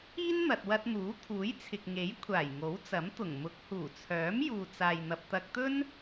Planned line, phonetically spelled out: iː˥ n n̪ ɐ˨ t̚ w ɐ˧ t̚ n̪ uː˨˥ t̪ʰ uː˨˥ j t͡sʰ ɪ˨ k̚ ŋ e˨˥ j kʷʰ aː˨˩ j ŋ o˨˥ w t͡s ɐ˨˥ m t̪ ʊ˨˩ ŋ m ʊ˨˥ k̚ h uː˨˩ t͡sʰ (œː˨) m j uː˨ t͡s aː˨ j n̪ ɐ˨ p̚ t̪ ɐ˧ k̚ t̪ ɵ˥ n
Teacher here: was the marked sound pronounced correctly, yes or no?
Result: no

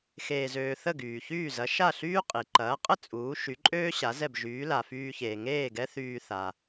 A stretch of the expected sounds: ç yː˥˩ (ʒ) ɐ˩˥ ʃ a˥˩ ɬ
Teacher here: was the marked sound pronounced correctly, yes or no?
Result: no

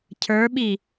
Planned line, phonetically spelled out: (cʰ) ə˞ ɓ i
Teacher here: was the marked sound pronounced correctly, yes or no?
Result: yes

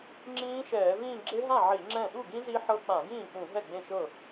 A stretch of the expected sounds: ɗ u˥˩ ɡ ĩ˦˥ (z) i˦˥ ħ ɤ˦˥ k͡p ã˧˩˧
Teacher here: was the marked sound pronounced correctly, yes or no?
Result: yes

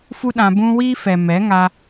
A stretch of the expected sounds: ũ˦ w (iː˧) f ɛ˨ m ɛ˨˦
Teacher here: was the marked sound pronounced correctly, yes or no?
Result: yes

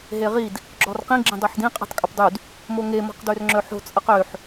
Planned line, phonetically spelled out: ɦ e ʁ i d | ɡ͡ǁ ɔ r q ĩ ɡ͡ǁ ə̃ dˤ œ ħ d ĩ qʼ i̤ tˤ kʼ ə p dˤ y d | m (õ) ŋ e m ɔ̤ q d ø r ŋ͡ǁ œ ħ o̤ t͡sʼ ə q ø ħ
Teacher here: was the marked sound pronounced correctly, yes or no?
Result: no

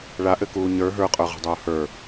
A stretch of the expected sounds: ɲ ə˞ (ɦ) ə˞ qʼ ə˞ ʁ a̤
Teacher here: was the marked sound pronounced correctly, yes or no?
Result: yes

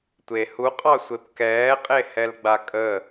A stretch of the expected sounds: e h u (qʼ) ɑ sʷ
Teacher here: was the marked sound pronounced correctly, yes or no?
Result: yes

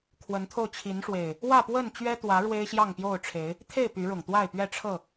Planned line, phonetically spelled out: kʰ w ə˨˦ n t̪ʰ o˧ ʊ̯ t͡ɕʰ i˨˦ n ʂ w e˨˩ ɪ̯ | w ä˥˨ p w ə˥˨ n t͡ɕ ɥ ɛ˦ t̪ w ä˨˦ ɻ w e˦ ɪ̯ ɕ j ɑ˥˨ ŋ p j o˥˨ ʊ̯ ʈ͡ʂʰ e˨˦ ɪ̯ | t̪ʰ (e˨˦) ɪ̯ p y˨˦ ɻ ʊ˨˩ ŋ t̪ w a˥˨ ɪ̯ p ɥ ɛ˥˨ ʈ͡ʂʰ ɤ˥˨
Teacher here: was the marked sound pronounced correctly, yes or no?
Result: no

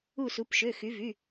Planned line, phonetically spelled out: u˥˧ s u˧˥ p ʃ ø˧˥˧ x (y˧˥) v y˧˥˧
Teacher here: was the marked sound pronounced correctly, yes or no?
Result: yes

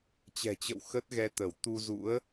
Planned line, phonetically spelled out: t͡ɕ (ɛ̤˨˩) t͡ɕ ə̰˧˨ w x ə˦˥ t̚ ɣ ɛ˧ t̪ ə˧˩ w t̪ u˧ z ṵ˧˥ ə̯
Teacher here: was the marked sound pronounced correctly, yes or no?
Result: yes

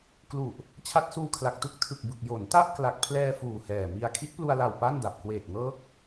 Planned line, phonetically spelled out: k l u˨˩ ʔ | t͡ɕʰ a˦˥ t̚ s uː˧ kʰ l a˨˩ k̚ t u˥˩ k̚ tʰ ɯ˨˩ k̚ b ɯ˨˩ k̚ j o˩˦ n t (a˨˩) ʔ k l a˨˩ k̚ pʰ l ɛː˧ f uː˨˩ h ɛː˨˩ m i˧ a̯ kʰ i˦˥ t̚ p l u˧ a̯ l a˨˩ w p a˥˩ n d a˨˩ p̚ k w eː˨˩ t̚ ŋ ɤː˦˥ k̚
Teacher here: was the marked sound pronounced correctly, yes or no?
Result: no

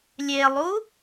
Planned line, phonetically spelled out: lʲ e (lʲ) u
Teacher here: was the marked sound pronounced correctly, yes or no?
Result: no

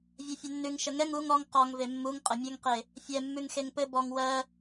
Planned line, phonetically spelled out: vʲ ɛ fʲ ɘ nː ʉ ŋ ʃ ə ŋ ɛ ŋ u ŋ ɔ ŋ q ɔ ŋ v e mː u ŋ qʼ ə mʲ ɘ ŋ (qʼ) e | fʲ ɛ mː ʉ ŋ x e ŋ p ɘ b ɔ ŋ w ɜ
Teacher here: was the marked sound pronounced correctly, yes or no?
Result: no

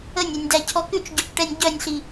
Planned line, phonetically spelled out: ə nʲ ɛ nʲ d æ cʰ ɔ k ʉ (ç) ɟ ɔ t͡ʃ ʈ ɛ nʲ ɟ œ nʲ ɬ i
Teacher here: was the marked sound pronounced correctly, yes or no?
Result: no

